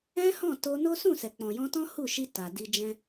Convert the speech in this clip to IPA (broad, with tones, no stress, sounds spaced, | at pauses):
ɛ̃˦ h ɔ̃˦˨ t o˧ n o˦ s ũ˦˨ s ɛ˨ k͡p ɔ̃˨ j ɔ̃˧ t ɔ̃˦ h u˦˨ ʃ i˧ t a˨ d i˧ d͡ʒ ɛ̃˧